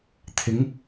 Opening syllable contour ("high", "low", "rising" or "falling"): rising